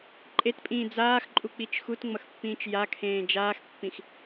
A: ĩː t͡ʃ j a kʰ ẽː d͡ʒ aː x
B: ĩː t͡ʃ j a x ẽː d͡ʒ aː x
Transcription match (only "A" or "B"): A